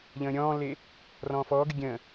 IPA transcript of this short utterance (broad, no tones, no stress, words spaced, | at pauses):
ʎə̃ːɾʲɔ̃ːlːe | rɔ̃ːfɔːɡɨ ɡʲə̃ː